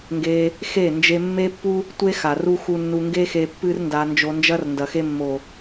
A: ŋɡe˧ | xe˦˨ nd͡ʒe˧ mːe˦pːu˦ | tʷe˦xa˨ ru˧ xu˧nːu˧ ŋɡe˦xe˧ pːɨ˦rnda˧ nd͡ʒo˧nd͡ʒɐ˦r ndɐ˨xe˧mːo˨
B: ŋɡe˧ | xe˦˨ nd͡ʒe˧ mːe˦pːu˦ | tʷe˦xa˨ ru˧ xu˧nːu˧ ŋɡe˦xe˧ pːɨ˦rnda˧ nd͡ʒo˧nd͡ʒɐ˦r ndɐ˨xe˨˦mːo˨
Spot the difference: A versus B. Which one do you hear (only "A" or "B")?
A